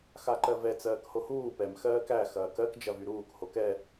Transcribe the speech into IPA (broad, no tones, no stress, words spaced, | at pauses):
xaǃɜvɛ t͡sɜːkhohuː pɛm xɜːkæ xɐːkɜk d͡ʒɐvyɾuːk hokɛ